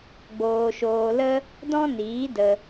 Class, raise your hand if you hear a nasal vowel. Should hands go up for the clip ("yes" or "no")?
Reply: yes